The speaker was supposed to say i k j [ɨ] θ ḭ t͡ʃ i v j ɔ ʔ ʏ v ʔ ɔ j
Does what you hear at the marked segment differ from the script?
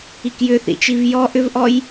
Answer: yes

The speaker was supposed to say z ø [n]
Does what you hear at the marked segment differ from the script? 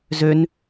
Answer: no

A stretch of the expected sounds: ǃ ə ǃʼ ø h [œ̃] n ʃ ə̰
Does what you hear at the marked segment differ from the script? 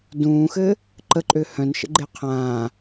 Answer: no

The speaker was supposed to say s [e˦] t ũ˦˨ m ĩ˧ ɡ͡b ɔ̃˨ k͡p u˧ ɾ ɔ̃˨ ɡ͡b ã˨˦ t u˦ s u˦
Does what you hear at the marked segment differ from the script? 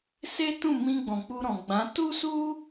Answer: no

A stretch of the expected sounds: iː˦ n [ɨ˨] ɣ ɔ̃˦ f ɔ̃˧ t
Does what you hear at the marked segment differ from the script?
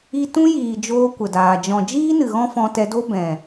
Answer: no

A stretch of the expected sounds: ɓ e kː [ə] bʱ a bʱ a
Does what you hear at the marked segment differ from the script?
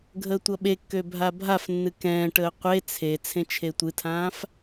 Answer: yes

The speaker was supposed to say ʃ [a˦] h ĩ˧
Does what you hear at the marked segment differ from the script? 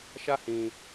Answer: no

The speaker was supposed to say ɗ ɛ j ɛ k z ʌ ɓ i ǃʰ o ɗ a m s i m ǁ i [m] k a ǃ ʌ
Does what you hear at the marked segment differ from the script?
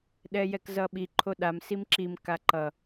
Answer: no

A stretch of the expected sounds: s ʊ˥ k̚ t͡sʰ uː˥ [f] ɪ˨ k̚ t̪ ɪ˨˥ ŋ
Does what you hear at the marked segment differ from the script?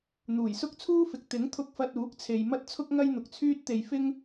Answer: no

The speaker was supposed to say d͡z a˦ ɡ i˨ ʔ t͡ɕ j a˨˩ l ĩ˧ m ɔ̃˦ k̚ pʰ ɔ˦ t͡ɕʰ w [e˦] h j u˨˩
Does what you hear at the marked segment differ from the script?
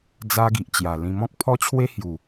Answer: no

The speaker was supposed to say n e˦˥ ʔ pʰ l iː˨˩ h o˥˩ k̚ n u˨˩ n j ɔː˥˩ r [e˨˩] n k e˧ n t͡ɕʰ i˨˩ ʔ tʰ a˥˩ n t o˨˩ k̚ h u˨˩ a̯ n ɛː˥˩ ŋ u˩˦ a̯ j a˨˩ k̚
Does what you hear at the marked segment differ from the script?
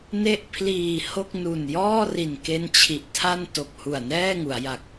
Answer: yes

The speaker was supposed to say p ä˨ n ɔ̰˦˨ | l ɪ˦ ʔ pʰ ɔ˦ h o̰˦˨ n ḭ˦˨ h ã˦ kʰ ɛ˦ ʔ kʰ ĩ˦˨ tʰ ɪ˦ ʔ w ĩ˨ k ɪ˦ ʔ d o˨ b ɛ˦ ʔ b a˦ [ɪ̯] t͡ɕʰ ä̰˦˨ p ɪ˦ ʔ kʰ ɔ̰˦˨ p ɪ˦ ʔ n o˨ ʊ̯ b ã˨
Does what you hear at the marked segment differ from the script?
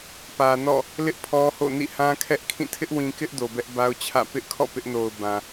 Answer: yes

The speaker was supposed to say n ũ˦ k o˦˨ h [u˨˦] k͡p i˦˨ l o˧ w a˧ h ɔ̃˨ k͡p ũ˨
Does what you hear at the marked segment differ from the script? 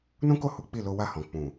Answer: no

